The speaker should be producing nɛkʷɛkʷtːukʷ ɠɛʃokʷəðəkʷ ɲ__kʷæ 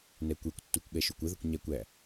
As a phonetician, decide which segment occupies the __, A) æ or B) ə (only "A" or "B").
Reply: A